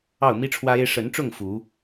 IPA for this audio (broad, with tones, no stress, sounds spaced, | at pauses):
ɑ˥˨ ʊ̯ m i˦ ʈ͡ʂʰ w ä˦ e˦ ɪ̯ ʂ ə˨˦ n ʈ͡ʂ ʊ˥˨ ŋ f u˨˦